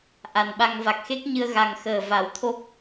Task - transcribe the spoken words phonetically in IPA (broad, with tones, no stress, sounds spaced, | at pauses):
ʔ a˨˩ n ɓ a˧ ŋ v a˨˩ k̚ x e˦˥ k̚ ɲ ɨ˧ ə̯ ɣ a˨˩ ŋ x əː˨˩ v a˨˩˦ w t̪ʰ o˦˥ k̚